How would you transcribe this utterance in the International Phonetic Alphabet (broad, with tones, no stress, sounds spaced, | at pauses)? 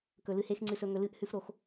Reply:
k ɵ˨ l ɨ˧ h e˦ x ŋ͡ǀ ɨ˧ s ɵ˧ ŋ ɵ˧ l ɨ˦ ʔ h ʉ˦ f ɾ o˧ x